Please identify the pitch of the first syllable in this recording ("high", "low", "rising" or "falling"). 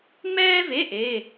high